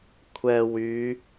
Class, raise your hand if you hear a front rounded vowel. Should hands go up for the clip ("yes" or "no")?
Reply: yes